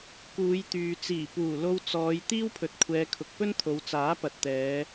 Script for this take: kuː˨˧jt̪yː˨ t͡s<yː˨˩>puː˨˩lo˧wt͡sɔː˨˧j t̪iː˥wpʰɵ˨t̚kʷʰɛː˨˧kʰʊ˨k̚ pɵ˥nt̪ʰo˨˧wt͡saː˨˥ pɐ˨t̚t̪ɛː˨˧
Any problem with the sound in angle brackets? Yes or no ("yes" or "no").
yes